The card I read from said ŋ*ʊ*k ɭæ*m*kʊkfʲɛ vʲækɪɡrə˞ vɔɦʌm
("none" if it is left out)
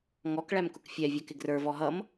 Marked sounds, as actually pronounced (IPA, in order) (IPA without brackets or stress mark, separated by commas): ɔ, m